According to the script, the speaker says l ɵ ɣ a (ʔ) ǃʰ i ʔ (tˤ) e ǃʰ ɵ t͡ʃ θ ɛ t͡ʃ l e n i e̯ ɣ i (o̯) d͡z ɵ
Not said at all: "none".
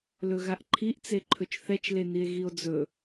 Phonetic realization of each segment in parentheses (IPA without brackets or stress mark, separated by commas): ʔ, t͡s, o̯